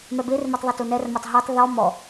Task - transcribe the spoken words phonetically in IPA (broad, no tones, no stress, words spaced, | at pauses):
mɛbermetˤ ðˤɐtunɛrmatˤ ɦetˤ ðɔ mɔ